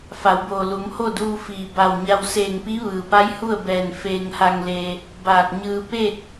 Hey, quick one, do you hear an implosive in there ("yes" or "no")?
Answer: no